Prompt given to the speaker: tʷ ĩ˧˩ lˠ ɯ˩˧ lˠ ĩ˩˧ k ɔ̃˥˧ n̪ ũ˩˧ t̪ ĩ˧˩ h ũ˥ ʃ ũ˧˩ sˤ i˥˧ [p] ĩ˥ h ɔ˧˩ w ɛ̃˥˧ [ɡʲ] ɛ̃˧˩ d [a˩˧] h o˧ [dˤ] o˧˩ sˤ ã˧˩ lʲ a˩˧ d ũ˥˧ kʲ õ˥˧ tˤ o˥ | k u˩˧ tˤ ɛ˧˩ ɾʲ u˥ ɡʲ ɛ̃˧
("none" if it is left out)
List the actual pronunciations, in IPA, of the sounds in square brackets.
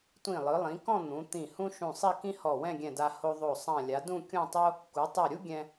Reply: k, ɡʲ, a˧, ðˤ

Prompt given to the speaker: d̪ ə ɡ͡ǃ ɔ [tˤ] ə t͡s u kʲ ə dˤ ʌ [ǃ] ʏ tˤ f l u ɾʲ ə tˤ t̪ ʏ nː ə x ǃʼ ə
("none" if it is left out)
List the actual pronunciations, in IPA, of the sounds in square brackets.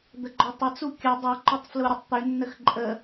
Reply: tˤ, ǃ

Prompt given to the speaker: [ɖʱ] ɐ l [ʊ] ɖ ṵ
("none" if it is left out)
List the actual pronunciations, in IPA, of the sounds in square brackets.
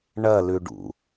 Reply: ɳ, ʉ

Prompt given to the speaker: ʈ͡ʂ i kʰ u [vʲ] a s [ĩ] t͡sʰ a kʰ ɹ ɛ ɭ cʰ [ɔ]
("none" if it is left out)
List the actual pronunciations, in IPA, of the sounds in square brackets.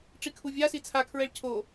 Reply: vʲ, i, o

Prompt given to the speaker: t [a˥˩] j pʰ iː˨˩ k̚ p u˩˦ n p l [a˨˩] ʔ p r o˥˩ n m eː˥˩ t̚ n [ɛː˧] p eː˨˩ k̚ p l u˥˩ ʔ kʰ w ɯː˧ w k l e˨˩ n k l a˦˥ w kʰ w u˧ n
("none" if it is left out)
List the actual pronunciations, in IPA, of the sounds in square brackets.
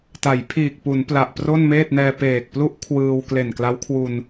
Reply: a˩˦, a˨˩, ɛː˧

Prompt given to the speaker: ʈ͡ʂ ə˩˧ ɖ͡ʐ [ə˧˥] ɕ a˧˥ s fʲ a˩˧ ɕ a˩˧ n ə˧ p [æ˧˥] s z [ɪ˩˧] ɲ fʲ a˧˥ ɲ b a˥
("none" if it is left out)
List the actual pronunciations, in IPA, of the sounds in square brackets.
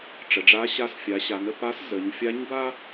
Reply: a˧˥, a˧˥, ə˩˧

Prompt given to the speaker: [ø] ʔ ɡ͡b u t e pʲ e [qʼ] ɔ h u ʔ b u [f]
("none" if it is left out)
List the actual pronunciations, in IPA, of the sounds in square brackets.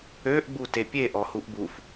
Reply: ø, ʔ, f

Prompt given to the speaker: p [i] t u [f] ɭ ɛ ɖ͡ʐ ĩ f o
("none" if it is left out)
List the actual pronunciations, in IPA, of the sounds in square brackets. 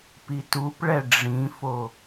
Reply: i, p

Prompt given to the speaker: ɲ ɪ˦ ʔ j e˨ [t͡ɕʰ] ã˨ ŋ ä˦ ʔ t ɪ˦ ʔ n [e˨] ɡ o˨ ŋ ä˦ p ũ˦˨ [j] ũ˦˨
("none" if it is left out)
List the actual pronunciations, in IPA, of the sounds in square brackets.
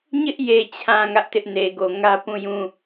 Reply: t͡ɕʰ, e˨, j

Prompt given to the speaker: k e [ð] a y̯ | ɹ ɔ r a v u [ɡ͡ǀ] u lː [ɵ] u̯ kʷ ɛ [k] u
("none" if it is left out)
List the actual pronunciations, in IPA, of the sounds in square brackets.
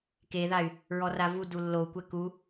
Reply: ð, d, o, k

